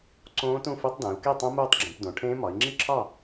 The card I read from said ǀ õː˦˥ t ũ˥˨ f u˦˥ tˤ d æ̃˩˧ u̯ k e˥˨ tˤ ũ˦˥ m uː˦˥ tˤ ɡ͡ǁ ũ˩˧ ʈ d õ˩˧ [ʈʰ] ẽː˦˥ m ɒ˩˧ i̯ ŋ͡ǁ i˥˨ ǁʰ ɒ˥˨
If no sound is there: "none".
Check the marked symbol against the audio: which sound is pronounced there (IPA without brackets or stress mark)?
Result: ʈʰ